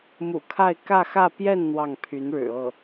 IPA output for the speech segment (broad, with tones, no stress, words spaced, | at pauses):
mṵ˨˩kʰa˥˧ɪ̯ kä˥˧xä˥˧ pjɛ˥˧n n̪wɑ˥˩ŋpʰy˧˥nɻɻ̩˨˩ ɤ˥˩